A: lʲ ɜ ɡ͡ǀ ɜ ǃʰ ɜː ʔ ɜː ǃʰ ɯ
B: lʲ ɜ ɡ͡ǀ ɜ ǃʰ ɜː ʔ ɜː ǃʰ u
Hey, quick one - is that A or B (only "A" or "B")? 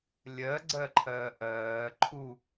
B